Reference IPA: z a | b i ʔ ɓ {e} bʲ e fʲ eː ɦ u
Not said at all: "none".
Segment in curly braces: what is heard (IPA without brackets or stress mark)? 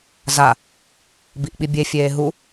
i